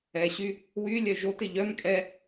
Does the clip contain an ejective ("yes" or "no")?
yes